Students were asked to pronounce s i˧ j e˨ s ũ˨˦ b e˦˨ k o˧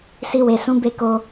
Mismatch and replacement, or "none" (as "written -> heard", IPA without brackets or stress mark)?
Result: j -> w